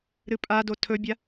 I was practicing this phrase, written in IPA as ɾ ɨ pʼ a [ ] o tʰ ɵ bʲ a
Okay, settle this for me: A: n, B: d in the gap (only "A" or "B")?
B